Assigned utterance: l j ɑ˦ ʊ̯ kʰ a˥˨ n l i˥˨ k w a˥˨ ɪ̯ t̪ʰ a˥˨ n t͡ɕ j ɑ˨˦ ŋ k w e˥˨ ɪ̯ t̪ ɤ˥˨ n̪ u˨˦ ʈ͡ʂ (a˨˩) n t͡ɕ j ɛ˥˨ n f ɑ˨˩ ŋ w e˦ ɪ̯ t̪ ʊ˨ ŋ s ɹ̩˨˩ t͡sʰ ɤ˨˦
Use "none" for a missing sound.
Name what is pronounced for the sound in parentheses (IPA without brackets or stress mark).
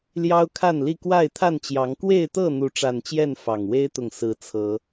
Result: a˨˩